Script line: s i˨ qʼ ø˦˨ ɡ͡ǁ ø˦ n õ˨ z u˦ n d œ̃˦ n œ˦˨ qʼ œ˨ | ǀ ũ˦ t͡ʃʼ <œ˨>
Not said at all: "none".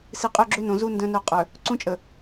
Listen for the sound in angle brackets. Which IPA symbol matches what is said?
ə˨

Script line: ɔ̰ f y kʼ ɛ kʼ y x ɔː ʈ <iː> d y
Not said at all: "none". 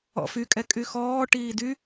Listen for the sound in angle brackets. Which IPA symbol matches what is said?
iː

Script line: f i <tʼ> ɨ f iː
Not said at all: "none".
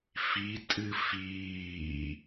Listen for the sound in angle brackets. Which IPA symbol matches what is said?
tʼ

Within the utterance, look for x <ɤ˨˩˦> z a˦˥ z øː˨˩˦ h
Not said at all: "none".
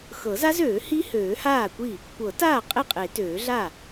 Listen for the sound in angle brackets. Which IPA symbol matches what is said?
ɤ˨˩˦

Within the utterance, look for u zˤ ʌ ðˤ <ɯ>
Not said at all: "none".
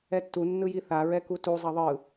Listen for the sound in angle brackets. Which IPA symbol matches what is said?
ɯ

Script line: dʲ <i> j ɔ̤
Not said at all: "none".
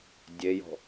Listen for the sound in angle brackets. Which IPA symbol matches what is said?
e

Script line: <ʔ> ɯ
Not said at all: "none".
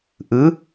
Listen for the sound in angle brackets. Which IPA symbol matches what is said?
ʔ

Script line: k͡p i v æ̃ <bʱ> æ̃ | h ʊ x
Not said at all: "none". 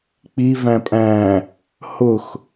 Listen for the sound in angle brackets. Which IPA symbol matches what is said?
pʼ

